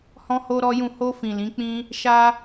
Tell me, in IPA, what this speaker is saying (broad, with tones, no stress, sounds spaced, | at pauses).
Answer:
h ɔ̃˦ h o˦ ɾ ɔ˦ j ũ˦˨ h o˧ f ĩ˨ l ĩ˨˦ k͡p ĩ˦ | ʃ a˦